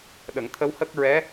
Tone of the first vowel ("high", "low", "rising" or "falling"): low